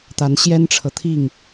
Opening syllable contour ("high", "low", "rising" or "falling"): rising